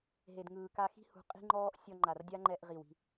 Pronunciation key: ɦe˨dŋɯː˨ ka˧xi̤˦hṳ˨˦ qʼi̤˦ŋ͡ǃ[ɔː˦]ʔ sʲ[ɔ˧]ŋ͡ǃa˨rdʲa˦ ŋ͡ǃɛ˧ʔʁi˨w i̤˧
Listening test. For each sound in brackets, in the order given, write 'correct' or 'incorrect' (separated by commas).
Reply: correct, correct